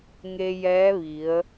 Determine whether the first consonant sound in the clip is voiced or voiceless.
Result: voiced